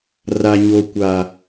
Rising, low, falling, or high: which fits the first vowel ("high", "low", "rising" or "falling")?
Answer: low